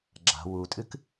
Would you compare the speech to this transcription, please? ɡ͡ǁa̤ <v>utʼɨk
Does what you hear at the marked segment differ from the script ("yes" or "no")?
yes